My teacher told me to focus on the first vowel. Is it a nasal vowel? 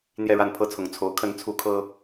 no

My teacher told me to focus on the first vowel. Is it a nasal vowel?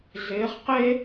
no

